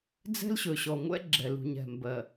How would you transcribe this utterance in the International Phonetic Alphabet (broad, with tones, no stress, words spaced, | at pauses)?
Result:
d͡zɛ̤˦lɕɵ˨ɕɔ˨ŋʷɛ̰˦ ɡ͡ǁɛ˨ lṳ˨ɲ ɛ̤˨ mbɜ˨